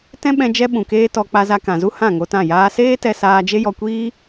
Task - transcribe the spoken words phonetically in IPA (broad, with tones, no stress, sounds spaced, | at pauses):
t ɛ̃˦ ɓ ɛ̃˧ d͡ʒ ɛ˦ ɓ ũ˨ k eː˦ t ɔ˧ k͡p a˧ z a˧ k ã˨ z u˦ h ã˦˨ ŋ o˧ t ã˦˨ j aː˧ s eː˦ t ɛ˧ s aː˧ d͡ʒ e˦ j ɔ˧ kʷ iː˦